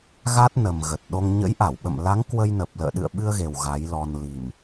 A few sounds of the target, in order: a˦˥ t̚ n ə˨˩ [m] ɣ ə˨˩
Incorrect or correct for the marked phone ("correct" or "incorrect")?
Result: correct